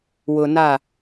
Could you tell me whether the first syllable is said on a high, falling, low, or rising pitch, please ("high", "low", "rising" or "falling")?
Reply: low